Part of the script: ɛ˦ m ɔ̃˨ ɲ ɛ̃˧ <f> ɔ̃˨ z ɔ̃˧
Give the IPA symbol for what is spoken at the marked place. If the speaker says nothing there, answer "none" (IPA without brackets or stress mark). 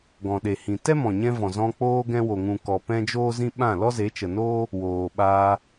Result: v